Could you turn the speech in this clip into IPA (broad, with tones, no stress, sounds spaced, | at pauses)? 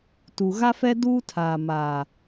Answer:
t u˨ ɣ a˦ f ɛ˦ d uː˦ tʰ aː˨ m aː˨